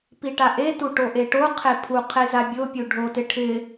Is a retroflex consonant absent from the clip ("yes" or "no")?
no